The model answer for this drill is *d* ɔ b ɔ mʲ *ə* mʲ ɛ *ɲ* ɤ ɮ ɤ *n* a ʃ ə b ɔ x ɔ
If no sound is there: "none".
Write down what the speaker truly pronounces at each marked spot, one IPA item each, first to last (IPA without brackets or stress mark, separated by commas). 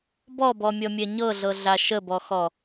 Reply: b, ɔ, ɲ, ɮ